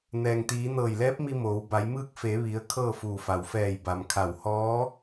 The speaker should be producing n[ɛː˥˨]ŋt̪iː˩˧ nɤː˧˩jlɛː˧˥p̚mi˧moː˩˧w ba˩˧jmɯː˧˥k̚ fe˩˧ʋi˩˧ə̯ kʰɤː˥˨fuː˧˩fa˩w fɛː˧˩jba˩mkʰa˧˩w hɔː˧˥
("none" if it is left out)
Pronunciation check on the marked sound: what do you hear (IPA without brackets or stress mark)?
ɛː˩